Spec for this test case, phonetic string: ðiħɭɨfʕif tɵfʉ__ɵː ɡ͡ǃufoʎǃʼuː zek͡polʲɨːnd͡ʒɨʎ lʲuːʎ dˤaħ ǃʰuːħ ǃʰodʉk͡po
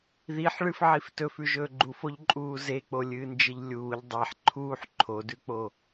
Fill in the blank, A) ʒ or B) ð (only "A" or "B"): A